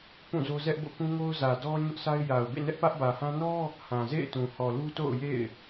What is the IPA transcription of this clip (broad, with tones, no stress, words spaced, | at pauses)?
pũ˦˨zo˦ zɛ˦ʔbo̰˦˨kũ˦ ŋo˦ʊ̯zä˨dɔ˦ ɲʊ˦ʔsʰa˦ɪ̯ ja˨ʊ̯bḛ˦˨ nɛ˦ʔpä˦ʔ bä˨hã˦ nɔ˦ | hã˨ zḛ˦˨ɪ̯tũ˨hɔ˨lu˦ to̰˦˨ʊ̯jḛ˦˨ɪ̯